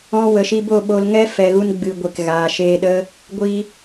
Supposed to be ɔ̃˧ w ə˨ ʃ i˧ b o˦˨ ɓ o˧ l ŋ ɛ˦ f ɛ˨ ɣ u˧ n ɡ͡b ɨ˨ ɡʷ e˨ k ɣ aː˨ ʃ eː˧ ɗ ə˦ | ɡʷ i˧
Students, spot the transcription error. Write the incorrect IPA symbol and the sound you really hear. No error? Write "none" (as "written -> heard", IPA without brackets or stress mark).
none